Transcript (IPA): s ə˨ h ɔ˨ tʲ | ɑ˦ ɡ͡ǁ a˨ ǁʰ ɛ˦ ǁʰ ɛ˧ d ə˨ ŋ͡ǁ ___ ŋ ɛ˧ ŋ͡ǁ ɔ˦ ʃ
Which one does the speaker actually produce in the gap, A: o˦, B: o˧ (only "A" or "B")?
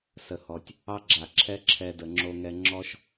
B